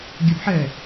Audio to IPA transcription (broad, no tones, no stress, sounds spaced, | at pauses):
ɡʲ ə b ħ ɛ